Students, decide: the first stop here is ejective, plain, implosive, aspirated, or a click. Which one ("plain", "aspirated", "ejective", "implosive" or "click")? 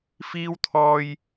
aspirated